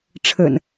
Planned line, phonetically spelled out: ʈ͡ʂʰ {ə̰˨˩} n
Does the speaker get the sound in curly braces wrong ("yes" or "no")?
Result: no